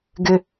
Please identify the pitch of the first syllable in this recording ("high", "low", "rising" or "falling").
low